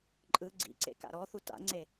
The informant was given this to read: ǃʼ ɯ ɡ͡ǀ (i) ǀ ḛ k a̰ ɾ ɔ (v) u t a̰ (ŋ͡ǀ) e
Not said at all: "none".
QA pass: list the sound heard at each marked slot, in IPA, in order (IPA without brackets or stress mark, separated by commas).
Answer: ḭ, θ, ŋ͡ǀ